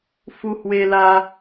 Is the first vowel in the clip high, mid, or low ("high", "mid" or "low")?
high